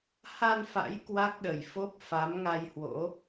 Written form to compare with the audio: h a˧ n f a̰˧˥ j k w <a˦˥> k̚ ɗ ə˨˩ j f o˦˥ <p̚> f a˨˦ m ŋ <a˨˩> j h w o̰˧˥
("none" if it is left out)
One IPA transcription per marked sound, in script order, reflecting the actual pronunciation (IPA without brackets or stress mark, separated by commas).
a˦˥, p̚, a˧